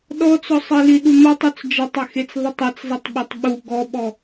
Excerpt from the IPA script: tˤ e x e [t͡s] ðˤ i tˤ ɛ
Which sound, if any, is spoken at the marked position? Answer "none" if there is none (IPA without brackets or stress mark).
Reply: t͡s